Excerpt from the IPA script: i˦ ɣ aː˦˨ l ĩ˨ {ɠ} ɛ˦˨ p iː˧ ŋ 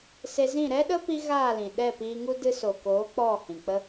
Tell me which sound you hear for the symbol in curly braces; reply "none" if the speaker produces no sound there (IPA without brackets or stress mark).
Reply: ɗ